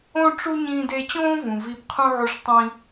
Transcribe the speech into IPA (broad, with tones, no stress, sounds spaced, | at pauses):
õ˥ ʈ͡ʂ u˥ ɲ ĩː˧ d e˧ t͡ɕ õː˥ v ũ˩ v i˧ b qʰ ũ˥ ʕ u˧ ʂ tˤ ĩ˧